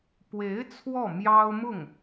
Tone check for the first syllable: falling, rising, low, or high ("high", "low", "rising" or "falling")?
rising